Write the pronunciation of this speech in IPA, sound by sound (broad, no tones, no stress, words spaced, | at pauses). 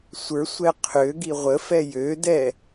sʷə˞sʷɛ qʰø ɡiʁʷəfɛ jødɛ